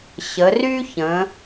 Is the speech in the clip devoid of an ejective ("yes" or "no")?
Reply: yes